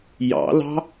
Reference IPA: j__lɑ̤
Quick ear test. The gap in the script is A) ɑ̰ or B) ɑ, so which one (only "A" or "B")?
A